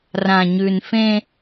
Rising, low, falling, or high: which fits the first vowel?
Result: low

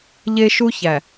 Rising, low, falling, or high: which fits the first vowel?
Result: high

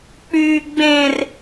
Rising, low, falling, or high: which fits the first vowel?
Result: low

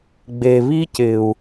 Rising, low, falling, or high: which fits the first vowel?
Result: low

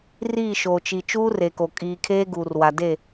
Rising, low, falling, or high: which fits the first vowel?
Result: falling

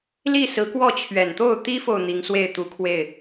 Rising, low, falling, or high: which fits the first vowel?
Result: falling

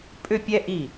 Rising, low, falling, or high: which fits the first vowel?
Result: falling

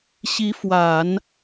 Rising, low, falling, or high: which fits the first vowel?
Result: rising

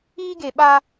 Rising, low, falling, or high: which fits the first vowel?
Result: high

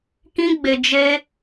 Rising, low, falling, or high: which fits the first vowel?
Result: high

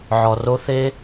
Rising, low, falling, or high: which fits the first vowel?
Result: low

